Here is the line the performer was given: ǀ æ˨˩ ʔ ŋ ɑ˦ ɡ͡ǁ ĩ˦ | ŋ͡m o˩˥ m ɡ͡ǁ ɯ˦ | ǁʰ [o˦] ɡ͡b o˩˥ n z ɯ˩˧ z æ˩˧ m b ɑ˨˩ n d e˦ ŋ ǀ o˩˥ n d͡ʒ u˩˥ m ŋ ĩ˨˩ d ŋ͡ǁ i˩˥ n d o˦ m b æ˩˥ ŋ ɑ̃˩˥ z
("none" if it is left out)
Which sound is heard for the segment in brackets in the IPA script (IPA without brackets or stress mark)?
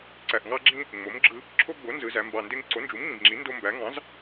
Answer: o˦